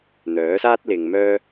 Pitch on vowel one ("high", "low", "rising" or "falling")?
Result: rising